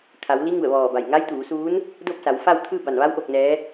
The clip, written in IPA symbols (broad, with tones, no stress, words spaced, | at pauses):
kʰa˩˧w li˧˥ŋu˧˩ə̯ʋɔː˧˩ ba˧˩jŋa˧˥jt̪uː˩˧suː˧˥n | do˥˨p̚sa˩˧wfa˥˨wt̪ʰɯː˥˨ ba˧˩nʋa˧˥w ʔo˧k̚nɛː˧˥